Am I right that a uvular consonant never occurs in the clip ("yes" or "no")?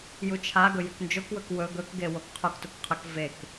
no